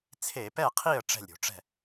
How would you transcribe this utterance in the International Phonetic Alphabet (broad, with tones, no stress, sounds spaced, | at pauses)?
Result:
t͡sʰ e˧˩˧ p ɛ˥˩ qʰ i˥˩ ə̯ ʈ͡ʂ ɛ̤˥˩ lʲ ɾʲ o̤˧˩˧ ʈ͡ʂ ɛ̤˥˩